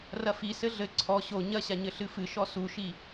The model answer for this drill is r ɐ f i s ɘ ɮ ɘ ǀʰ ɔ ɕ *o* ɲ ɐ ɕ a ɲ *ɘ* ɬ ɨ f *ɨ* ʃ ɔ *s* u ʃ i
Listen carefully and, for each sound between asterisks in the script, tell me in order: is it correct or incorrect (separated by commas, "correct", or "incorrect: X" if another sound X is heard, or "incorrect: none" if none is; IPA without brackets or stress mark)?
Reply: correct, correct, correct, correct